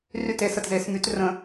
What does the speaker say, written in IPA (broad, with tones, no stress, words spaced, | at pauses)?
ry˥˩te˨˩˦sə˥˩tze˨˩˦s my˨˦t rə̃˨˩˦